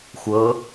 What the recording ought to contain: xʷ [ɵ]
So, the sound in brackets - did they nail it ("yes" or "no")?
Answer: no